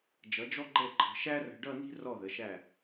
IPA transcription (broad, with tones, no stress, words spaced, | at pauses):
d͡ʒʌ˩˧d͡ʒɔ˧ɡ͡ǃɛ˧˩ǃʰə̤˩˧ ʃæ˥rə̤˧ ɖʌ˥˧ni̤˥ rɔ˧˩ðə˩˧ʃæ˧˩